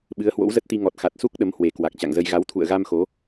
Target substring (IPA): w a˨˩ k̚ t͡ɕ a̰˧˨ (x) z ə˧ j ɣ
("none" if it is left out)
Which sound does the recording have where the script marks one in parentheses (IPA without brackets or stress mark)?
ŋ